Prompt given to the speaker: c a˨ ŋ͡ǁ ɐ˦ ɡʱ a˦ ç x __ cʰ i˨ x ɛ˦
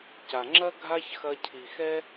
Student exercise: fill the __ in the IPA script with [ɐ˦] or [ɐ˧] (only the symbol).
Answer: ɐ˧